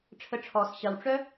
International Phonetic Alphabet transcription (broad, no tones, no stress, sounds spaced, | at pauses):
ʈ͡ʂʰ ə ʈ͡ʂʰ ɔ s ɕ ɐ w ʈ͡ʂ œ